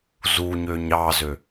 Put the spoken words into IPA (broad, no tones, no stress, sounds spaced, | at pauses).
z u ɲ ø ɲ ɑ z ø